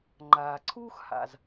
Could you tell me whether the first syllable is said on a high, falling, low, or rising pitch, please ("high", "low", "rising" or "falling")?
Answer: low